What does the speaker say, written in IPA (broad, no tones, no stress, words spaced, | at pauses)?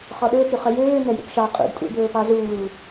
χɔɗɵːpɾy χœjøː nœjṵpʃɑ qʼṵdkʷʼḛbɵː pɑzuː